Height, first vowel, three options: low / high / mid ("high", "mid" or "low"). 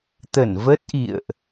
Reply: mid